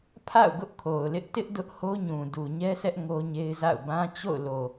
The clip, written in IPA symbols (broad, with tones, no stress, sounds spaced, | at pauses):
pʰ a̰˦˨ ʊ̯ ɡ ʊ˦ ʔ kʰ o˨ ʊ̯ l ɪ˦ ʔ t ɪ˦ ʔ d ʊ˦ ʔ h o˦ ɲ ũ˨ d u˨ ɲ ɛ˦ sʰ ɛ˦ ʔ ŋ o˦ ɲ e˦ ɪ̯ z a̰˦˨ ʊ̯ b ã˦ t͡ɕ o̰˦˨ ʊ̯ l o˨